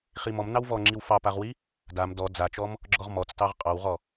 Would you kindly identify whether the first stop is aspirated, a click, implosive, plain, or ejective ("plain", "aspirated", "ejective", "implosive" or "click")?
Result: click